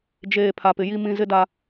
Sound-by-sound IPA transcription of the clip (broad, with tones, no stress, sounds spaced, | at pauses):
d͡ʒ eː˨ pʰ a˨ p ɪ˨ j i˦ m ĩ˦ z ɪ˦ d a˦